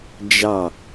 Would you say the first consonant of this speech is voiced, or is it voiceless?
voiced